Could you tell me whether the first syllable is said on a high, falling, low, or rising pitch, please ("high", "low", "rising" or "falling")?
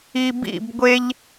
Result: low